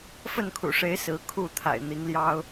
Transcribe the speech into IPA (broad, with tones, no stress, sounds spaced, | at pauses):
f ə˥˨ n kʰ ṵ˨˩ ʂ e˨˦ ɪ̯ s ɹ̩˨˦ kʰ u˥˨ t̪ʰ a̰˨˩ ɪ̯ n̪ i˨˦ ŋ l j ɑ˦ ʊ̯